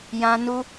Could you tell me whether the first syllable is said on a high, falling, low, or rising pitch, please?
high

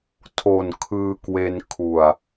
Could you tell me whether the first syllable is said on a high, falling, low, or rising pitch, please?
low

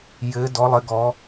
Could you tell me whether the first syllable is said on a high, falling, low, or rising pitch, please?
rising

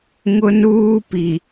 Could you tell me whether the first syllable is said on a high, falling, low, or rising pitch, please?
high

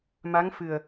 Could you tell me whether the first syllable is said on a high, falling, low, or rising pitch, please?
rising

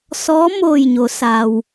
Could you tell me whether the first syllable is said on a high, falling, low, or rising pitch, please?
rising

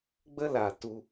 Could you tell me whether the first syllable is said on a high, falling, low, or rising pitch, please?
high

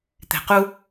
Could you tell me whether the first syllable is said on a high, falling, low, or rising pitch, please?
low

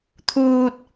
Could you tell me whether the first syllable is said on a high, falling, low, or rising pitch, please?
high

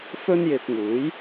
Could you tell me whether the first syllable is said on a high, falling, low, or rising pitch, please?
high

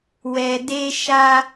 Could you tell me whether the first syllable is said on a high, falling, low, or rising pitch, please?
low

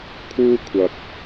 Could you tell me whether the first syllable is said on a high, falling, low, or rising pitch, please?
high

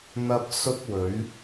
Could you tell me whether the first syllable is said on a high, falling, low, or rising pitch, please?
high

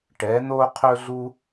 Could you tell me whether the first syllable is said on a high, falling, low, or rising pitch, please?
rising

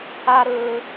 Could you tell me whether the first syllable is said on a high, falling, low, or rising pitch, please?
high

